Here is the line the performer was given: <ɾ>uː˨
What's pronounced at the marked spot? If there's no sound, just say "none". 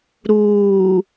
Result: ɾ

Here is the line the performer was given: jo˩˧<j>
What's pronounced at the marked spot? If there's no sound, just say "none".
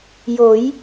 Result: j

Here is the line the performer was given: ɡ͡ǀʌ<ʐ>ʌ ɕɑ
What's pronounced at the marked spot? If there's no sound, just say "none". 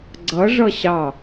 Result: ʐ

